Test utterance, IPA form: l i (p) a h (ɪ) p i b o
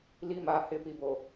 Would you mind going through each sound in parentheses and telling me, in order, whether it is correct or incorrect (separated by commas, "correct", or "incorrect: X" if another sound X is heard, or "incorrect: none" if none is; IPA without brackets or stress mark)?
incorrect: m, correct